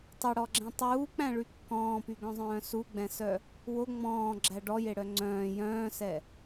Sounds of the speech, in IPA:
tˤɵɽɔɡ͡ǁɛ̃ tˤuːk͡pæ̃ɭy kːɔ̃ːpyɡœ̃zˤœ̃ː suɡ͡bɛ̃sœ | wo ŋ͡mɔ̃ːɡ͡ǁæ ɖɔjeɽœ ŋ͡ǀœ̃ː jœ̃ːsɛ

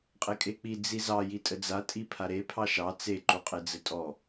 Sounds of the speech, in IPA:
qʼekʼek͡pi d͡zizɑ jitʼəd͡za tʼipʰaɾe pʰɑʃɑ t͡se ǃuqʼed͡zətʼɔ

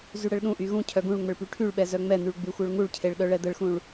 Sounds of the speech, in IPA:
zyɽəɭɗũʔy ɣũcʰœ ɡũɭ ŋ͡məɭpyʈʰyɭɓɛ zœŋ͡mɛn̪yɭ ɡ͡byxʷœɭŋuɭcʰeɭ ɗœɭɛd̪əɭxũɭ

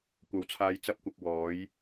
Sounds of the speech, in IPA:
kʷɐ˨˥wt͡sʰaː˧j t͡sɐ˥p̚kʷɐ˧k̚ wɔː˨˥j

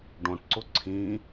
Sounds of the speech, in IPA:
ɖõʈǀʊ ǀʰĩ

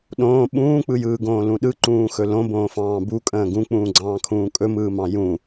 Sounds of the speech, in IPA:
ɗõː ɓũːk͡pɯjɯːɡõː lũɗɯǃũːxɵ lõbõːfɑ̃ː bukʼə̃ː ɡũk͡pũːɡ͡ǀɑ̃ːkʰũː kʼɵmɯːmɑ̃ jũ

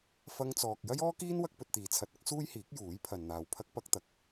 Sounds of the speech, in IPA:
fɐ˧ŋt͡sɔː˨k̚ jɐ˥jɔː˥kiː˥n wɐ˥k̚pɵ˧t̚t̪iː˨˧ t͡sʰɐ˨˥t̚ ɐ˥k̚suː˥j hiː˨˥k̚juː˨˥j pʰɐ˨nn̪aː˨w pʰɐ˥k̚ pɐ˥k̚t̪ɐ˨˥k̚

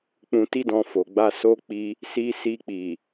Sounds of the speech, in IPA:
k͡pũ˨ti˧dɔ̃˨ fo˨ ɡ͡ba˧so˦ k͡pi˦ | si˧si˧k͡pi˨

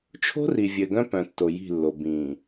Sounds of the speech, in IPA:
t͡ʃʰo̤˦ri˨ vʲɘ˨ɡœ̃˦ pœ̃˨tːo˨ji̤˦˨lːo˨ bĩ˨

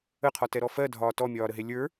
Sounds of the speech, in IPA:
əqʰɒtɛɾɔ fɜdʱɒː tɔmʲɒːɾəɦe lʲə˞

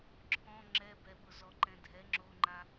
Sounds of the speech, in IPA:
ǁʰɔ̃ ŋ͡ǁɛbɛɓʊ zɔǃɛ̃dʱɛ ŋ͡ǁoŋ͡ǃa

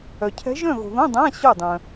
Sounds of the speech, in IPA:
œ˨ cʰɛ̤˧˥ʒœ̃˥˨ɣo̤˨ðõ˧˥˧ dˤã˧˥˧ ɕo˥˨ dˤœ̃˨

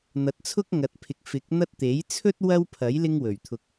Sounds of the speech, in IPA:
n̪ɐ˨˥t̚t͡sʰʊ˥k̚ŋɐ˨˥t̚pʰɪ˨k̚ fɪ˨˥k̚ n̪ɐ˥t̚ t̪e˨˥j t͡sʰɵ˥t̚ wɐ˥wpʰɐ˨˥j lɪ˥ŋwɵ˨˩ɥt̪ʰʊ˧k̚

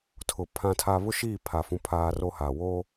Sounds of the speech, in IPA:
tʰʊ˨ pʰã˦tʰa˦ βʊ˦ʃiː˦˨pʰa˨ fũ˦ pʰaː˦ro˦ha˨ woː˦

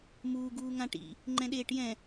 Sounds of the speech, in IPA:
muː ɡuːŋãʈḭ | ŋ͡ǃɛ̃ɗeːʈjɛ̃

